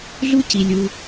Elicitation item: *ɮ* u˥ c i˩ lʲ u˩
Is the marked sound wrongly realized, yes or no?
no